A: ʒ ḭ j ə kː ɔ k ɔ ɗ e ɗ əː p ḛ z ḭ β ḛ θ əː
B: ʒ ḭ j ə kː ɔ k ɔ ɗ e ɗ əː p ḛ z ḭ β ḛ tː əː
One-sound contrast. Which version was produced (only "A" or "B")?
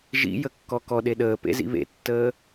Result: B